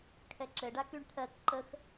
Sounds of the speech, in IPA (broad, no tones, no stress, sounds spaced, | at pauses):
kʰ ɛ ǁ ɘ ɖ a k y ɳ t̪ʰ ɜ k ǃ ə x